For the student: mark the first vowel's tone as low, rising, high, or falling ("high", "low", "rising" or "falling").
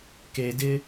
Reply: low